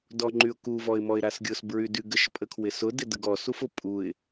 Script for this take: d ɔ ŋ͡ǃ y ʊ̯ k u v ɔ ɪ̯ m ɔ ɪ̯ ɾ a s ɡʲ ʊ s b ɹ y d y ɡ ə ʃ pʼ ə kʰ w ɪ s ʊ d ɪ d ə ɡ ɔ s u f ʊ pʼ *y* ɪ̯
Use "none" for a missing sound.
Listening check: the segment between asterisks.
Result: u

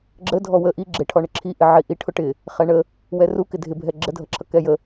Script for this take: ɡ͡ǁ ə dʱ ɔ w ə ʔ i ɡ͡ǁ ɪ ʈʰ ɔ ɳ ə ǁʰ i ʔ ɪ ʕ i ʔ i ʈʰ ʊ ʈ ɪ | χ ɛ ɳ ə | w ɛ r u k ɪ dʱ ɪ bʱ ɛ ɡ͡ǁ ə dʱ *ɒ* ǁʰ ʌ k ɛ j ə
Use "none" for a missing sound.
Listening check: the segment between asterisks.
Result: ʌ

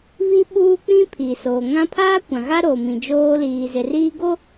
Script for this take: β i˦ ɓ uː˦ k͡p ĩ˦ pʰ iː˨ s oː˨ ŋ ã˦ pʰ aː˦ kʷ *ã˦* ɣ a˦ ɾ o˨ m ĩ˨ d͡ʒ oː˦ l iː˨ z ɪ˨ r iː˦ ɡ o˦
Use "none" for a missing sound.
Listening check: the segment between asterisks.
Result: ã˨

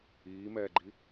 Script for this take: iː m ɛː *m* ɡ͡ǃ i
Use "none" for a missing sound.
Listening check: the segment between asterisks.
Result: none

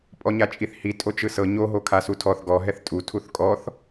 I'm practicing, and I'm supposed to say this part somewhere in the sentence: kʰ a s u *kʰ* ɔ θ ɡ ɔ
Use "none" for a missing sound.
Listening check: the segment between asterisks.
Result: tʰ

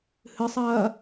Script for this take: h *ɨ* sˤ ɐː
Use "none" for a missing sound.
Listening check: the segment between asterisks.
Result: ɨ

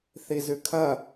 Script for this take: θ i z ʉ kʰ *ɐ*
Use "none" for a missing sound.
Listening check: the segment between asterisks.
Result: ɐ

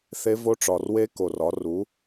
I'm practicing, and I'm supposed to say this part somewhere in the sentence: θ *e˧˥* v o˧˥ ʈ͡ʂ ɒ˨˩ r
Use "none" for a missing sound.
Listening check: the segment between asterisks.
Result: e˧˥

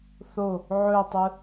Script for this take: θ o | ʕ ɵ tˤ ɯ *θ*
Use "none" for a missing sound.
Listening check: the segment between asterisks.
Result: none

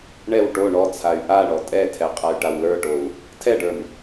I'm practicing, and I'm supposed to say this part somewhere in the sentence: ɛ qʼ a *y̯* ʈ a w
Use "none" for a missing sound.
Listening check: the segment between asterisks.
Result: y̯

